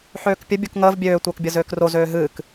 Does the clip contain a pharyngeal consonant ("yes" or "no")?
yes